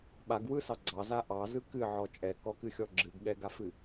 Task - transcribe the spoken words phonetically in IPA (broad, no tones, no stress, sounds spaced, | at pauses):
ɓ a ɡ w ɯ s ɑ ɡ͡ǀ ɑ z a ʔ ɑ z ɯ k ɨ ʕ ɔ t͡ʃʼ ɛ k ɔ k ɨ xʲ ɔ ɡ͡ǁ ɨ ɡ ɠ ɛ ɡ a f ɨ